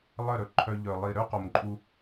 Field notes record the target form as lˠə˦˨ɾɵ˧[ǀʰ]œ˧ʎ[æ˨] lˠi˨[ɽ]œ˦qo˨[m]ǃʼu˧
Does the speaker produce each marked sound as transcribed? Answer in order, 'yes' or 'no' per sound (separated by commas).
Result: no, no, no, yes